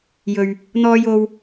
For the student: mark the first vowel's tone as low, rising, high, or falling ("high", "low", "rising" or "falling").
low